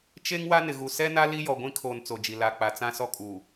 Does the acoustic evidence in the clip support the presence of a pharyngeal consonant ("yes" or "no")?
no